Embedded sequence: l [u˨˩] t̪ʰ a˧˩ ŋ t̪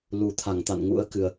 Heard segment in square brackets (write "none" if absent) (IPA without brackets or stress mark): u˨˩